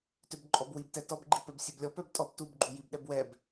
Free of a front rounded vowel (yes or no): no